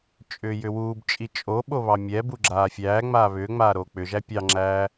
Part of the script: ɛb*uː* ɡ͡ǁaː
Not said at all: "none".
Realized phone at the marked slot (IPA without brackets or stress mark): u